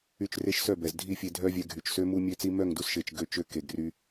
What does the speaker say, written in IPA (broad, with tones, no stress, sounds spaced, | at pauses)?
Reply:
y˦˨ t͡ʃ r e˦ ʃ s œ˦˨ b ɛ˨ z dʱ i˦˨ fʲ e˧ dʱ œ˦ vʲ ɛ˧ ɡʱ y˨ t͡ʃ s ø˦ m u˦ mʲ ø˦ t͡s i˦ m œ˦˨ ŋ d u˧ s ʃ e˨ t͡ʃ ɡ ø˧ t͡ʃ ø˧ k e˨ ɡ r y˧